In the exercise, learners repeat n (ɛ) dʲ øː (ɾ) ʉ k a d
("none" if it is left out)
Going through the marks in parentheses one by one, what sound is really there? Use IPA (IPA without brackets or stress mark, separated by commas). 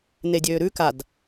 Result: e, ɾ